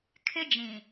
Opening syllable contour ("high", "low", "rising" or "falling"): high